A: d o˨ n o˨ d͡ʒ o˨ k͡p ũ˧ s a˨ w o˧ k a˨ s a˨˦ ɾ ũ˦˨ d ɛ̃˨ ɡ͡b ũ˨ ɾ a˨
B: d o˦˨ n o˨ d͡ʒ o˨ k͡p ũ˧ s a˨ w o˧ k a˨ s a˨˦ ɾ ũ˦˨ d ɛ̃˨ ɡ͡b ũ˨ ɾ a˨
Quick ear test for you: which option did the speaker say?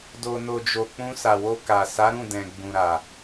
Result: A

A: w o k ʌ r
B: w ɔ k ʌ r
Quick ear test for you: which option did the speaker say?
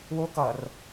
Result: A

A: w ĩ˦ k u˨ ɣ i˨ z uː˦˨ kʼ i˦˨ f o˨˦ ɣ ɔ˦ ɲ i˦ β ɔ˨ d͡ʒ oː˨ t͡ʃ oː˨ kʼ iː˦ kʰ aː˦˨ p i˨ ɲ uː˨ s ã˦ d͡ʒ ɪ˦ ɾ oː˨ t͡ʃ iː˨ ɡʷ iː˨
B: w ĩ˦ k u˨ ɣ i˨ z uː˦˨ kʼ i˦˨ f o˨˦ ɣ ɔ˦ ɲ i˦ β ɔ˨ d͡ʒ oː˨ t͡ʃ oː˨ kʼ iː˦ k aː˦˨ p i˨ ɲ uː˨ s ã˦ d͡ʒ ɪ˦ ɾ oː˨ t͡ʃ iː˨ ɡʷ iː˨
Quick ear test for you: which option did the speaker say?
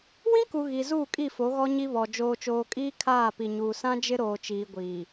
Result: A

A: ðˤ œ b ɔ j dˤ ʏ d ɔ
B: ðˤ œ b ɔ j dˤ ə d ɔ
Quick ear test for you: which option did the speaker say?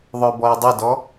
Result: B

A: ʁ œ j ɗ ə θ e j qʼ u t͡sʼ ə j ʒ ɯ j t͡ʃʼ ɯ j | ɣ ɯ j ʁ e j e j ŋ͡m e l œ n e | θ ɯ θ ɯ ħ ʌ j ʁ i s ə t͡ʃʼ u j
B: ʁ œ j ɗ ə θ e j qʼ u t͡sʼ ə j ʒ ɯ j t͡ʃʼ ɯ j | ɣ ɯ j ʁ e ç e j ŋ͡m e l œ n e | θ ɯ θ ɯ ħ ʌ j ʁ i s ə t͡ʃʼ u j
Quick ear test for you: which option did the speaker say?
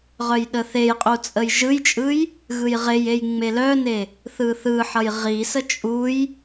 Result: A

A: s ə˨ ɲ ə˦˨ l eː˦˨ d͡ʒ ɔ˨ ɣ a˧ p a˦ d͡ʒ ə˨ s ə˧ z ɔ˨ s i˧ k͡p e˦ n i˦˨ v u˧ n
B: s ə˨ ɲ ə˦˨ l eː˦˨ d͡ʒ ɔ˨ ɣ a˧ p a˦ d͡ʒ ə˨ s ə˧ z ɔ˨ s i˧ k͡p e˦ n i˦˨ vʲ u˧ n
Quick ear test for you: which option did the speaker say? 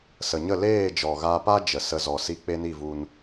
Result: A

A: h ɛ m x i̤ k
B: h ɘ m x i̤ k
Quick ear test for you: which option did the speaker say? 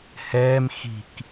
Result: A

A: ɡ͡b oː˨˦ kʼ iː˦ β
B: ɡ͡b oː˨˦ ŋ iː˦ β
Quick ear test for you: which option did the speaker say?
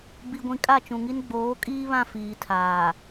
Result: A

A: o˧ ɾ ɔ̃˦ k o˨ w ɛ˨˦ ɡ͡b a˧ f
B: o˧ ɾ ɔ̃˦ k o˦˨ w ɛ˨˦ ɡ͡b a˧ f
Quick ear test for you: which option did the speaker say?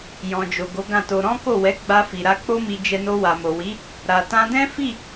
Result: B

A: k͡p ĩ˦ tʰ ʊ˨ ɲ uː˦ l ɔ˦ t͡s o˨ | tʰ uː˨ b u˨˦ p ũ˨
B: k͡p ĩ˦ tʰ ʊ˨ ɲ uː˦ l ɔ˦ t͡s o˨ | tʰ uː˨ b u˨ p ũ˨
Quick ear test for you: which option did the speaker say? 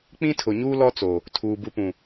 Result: B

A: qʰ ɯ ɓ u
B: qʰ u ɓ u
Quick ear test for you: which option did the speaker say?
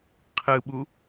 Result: A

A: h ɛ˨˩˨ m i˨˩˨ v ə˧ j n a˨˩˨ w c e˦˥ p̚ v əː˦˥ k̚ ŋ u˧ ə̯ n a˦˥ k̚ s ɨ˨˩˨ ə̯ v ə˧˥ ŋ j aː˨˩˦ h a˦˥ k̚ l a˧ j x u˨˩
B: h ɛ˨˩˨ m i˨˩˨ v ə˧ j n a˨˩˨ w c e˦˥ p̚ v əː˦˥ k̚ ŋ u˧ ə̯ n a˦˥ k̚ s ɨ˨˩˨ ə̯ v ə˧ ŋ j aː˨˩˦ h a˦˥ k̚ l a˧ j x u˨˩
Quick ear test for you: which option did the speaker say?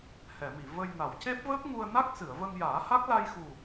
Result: B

